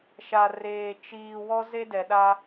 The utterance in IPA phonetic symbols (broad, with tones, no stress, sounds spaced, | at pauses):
ʃ a˨ r eː˨ t͡ʃ iː˨ w ɔ˦ z e˦ d ɛ˨ ɗ a˦